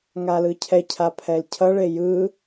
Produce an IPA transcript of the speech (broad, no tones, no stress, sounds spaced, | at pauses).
ŋ a l ɯ cʰ ɛ cʰ a pʰ ɛ l cʰ ʌ ɭ e j ɯ